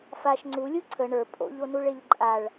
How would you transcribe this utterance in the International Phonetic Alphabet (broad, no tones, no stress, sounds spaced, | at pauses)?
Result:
f a ʃ ŋ͡ǀ u lʲ u ǀʰ ə ɳ ə˞ pʼ o̰ ʎ o n u ɭ e ʎ ǃʼ a ɭ